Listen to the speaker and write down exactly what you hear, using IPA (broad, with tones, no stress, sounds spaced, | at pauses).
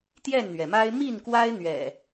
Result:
t̪ j ɛ˥˨ n n̪ ɥ ɛ˩ m a˦ ɪ̯ m i˥˨ n k w a˦ ɪ̯ n̪ ɥ ɛ̰˨˩